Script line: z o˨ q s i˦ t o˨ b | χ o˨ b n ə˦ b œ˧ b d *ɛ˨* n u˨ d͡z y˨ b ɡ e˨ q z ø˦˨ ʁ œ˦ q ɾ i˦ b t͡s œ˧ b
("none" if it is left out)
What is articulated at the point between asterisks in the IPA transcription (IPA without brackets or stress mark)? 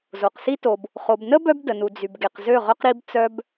ə˨